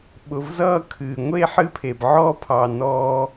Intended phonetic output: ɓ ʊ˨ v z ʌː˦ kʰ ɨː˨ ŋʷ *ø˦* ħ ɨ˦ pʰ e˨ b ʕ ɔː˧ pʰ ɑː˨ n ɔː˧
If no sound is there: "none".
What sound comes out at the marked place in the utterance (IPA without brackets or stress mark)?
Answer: e˦